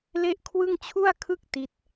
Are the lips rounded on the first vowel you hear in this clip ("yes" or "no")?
no